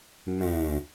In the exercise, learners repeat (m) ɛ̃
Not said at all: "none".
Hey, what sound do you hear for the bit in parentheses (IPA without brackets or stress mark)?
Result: m